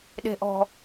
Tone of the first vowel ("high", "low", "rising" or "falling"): low